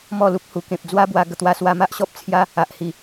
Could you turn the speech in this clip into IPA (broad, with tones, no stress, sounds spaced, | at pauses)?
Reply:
m ɔ˥˧ l u˦ p̚ h u˨˩ k ẽ˨ p̚ d͡z w a˦ b w a˧ ɡ ə˧ t̪ w a˧ s w a˧ m a˦ ʔ ɕ ɔ˦ p̚ t͡sʰ j a˦ | a˨ ʔ h i˨˩